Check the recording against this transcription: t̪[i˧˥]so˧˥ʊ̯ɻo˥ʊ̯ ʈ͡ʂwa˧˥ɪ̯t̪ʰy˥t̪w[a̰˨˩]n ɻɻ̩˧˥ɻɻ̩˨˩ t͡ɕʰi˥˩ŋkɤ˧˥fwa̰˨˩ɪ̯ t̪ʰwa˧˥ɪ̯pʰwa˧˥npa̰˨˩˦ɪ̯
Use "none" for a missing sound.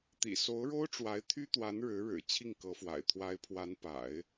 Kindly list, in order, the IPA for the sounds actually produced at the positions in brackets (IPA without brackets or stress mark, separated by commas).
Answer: ḭ˨˩, a˧˥